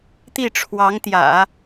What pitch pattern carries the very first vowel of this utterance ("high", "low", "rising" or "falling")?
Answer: falling